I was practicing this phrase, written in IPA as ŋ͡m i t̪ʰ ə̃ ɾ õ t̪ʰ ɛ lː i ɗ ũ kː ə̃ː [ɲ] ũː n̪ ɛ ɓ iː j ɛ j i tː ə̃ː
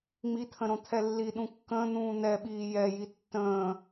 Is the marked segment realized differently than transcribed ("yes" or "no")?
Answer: yes